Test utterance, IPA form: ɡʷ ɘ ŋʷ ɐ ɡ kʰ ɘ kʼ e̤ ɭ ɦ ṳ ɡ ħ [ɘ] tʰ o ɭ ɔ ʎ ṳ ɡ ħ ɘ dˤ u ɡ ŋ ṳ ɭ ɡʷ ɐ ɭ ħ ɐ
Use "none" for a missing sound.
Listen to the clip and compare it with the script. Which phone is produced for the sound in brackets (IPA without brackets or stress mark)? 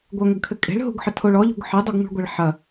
ɘ